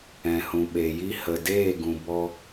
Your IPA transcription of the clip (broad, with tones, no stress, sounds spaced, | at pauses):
ɛ̃˨ h ũ˨ ɓ e˨ j i˨ h ə˨ d eː˦˨ ɡ ũ˨ b ɔ˧